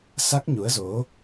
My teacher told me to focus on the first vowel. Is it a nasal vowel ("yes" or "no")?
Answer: no